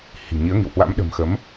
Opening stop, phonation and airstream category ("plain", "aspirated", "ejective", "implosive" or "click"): implosive